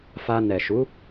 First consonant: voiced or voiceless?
voiceless